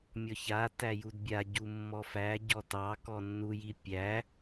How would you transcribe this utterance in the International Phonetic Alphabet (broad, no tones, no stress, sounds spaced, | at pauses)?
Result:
mʲ ɔ ç a t æ j u d bʲ a ɟ u mː ɔ f æ ɟ ɔ t ɑ k ɔ nː u j i pʲ æ